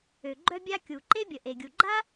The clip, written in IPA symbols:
ø˩ɡ͡ǃœ˥bʲa˥ kʲu˩ǃe˥bʲə˩ ʔe˩ɡʲu˩ɡ͡ǃa˥

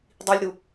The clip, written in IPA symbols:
dˤilʲɾu

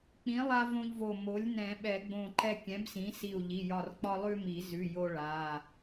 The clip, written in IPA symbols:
k͡pĩ˨˥lˠa˦ võ˦ʎvo˧˩ mo˨˥lʲ nɛ̃˨˩˦ɓɛ˨˩˦ɡ͡bõ˧˩ǃɛ˦ kʲɛ̃˨˥bsĩ˨˥si˧˩u̯ ʎi˩˧˩jɒ˧˩rk͡pɒ˦ lˠʉ˦mi˨˩˦zʉ˩˧˩ jo˦ɭa˩˧˩

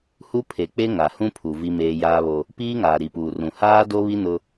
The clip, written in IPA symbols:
hu˦pʰe˨ k͡pe˦ŋa˨hũ˦pʰu˨ vi˦meː˦ jaː˦βo˦ | piː˦ŋaː˨ɾi˨puː˨ rũ˨haː˦do˦βi˦ nʊ˦

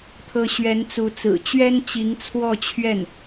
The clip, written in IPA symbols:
t̪ʰɤ˧˥ɕɥɛ˧˥nt͡su˧˥t͡sɹ̩˨˩ t͡ɕɥɛ˥nt͡ɕi˧˥ŋ t͡sʰwɔ˥˧t͡ɕʰɥɛ˥˩n

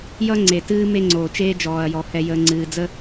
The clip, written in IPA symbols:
jʌ˦ŋ͡ǀe˨tɨː˦ me˦ ŋ͡ǀoː˨t͡ʃeː˦ d͡ʒɔː˨ɐ̯jɔ˨ hɛ˨ jəː˨ŋ͡ǀɨː˨d͡zə˦

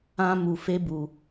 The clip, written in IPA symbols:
ã˦mu˧ fe˦bu˧

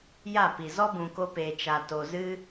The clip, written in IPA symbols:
ja˦˨pi˨ zɔ˦bũ˨ko˧peː˨ t͡ʃa˨to˨zɨ˦

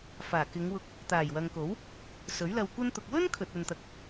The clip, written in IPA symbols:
faː˨˩kɪ˨˧ŋwʊ˧k̚ | t̪aː˨˩jwɐ˨ŋko˨˥w | sɵ˨˥ɥlɐ˧wkʷɐ˥nt̪ʊ˧k̚ wɵ˥n kʰɵ˨t̚ɵ˨nt̪ɐ˨˥k̚

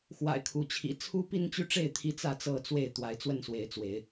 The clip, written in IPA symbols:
xwa̰˨˩ɪ̯ kʰu˨˦t͡ɕʰḭ˨˩ t͡sʰu˦pi˦nt͡ɕy˦ʈ͡ʂe˥˨ɪ̯ t̪ʰi˦t͡sä˥˨ t͡sɤ˥˨t͡swe˥˨ɪ̯ t̪wa˨˦ɪ̯ t͡swə˥˨nswe˨˦ɪ̯t͡swe˨˦ɪ̯

